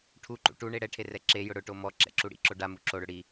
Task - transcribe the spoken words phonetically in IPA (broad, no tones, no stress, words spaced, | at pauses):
ʈʰuǃṵ ʈuɳe ɽɛʈʰerɛ ǁe jʊɽʊʈo mɔ ǁɛ̰ǁuɽḭǁo ɖamu ǁoɽʊ ɽi